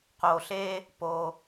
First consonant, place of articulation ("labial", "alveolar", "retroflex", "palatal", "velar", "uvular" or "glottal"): uvular